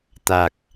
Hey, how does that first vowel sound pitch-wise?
low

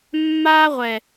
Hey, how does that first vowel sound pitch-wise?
high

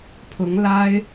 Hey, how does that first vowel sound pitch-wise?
rising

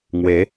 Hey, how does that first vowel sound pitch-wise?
rising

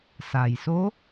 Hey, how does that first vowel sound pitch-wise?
low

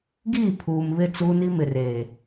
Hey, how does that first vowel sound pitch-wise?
falling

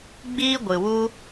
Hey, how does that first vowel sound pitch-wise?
high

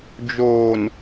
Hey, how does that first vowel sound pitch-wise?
low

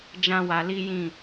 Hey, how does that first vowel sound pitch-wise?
high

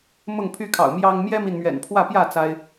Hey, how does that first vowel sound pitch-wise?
falling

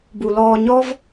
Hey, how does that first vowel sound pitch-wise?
low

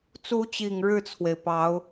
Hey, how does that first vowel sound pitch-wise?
rising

